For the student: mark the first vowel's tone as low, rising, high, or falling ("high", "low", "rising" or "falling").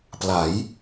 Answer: rising